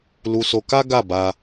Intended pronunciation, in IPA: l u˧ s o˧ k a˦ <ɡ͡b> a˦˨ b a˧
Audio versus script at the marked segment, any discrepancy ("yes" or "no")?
yes